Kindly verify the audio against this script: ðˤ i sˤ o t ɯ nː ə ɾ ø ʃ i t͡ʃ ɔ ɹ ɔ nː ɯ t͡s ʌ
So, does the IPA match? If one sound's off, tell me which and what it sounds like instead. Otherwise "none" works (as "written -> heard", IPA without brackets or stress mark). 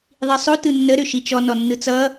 ɹ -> n